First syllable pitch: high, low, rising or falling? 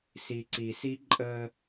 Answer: low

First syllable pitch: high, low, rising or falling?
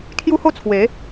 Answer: high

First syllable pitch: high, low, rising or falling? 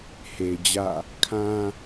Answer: low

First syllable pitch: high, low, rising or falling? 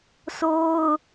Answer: high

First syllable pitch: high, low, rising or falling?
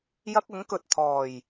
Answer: high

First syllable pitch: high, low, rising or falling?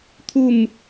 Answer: falling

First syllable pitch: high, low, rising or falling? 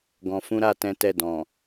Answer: low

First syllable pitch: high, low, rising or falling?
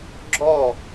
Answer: falling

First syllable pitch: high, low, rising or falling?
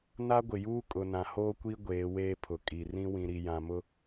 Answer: high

